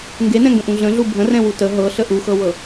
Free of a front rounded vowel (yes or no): yes